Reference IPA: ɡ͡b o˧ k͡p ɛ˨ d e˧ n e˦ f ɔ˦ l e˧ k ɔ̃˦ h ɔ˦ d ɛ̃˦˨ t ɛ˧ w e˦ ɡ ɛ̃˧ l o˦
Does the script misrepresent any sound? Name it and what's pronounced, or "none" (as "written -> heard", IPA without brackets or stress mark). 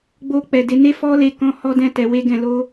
none